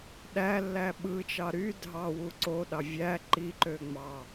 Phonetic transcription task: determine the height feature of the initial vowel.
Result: low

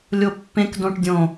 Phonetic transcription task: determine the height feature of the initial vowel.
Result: mid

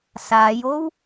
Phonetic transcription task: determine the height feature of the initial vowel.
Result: low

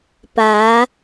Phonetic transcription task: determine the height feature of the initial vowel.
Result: low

